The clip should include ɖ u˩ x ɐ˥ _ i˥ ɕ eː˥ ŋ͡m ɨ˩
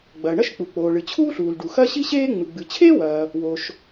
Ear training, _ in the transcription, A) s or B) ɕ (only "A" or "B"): B